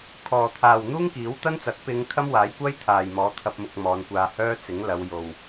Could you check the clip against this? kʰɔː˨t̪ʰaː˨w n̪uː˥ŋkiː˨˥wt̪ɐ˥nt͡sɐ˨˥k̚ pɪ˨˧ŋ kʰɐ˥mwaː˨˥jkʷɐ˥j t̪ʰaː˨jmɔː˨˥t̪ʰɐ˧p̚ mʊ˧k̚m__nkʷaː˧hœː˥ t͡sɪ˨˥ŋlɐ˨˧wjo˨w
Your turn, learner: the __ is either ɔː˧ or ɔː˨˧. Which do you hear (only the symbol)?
ɔː˨˧